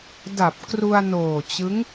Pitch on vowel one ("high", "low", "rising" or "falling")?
low